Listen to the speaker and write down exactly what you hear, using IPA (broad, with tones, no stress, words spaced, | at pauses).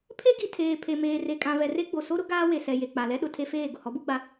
pʰe˦ɡi˨ tʰeː˨pʰe˨meː˨ re˨kʼã˨vɛ˨re˦ ɡ͡bo˨so˦ɾʊ˦ ɡaː˦we˨sɛ˨ je˨ k͡pa˨lɛ˦ ɗʊ˨tʰe˦feː˦˨ ɡʊ˨hɔ˨˦bu˦ ɡ͡ba˦